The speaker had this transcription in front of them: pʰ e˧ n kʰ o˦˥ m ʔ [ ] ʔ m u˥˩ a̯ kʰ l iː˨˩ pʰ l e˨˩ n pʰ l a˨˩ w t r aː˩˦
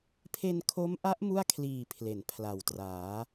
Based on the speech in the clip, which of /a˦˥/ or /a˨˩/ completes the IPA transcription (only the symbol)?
a˦˥